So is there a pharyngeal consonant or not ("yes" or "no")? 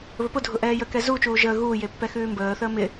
no